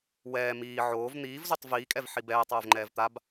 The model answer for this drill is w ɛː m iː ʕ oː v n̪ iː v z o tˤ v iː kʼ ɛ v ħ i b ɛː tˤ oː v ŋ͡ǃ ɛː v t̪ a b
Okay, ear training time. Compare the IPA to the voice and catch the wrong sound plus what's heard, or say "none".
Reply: none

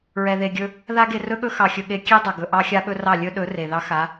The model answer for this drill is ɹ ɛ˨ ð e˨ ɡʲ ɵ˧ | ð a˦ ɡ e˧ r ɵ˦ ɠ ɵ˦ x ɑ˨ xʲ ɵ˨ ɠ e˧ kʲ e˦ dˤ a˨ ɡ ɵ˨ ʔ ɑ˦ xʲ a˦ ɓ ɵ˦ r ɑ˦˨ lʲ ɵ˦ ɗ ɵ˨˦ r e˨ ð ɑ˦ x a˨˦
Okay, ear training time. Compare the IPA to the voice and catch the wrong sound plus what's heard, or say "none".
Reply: none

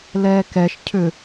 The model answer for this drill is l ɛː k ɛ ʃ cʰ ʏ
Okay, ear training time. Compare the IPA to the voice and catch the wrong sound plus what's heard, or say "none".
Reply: none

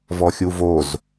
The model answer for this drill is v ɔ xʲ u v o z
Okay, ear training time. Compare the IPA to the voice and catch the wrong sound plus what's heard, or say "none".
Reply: none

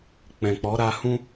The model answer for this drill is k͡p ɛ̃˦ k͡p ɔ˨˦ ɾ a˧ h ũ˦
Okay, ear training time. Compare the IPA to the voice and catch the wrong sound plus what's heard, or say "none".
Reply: ɛ̃˦ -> ɛ̃˨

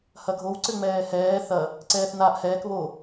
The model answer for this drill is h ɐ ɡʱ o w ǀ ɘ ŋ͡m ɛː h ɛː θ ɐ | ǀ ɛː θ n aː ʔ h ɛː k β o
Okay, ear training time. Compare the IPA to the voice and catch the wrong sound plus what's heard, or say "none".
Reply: none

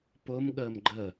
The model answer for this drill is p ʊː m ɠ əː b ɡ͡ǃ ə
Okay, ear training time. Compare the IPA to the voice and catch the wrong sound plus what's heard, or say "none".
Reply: b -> m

